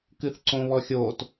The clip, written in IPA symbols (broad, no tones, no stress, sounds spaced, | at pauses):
k ɨ θ ǀ õ β ɔ xʲ o t